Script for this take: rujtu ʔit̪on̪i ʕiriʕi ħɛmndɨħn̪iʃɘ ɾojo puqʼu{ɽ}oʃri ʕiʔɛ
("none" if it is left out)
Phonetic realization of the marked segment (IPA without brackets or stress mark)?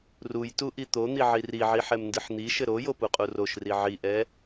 r